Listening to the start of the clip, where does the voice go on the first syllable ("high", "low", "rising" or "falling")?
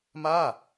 falling